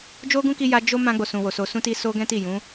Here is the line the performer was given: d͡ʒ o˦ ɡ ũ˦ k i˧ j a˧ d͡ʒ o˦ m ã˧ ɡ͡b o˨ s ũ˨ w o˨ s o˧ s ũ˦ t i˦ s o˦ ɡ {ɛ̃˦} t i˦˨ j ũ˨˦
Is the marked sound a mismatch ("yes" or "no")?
no